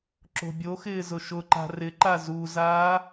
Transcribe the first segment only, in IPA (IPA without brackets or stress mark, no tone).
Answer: ǁ